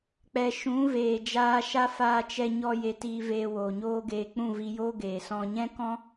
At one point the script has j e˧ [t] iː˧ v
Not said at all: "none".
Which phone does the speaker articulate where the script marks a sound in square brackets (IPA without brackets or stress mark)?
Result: t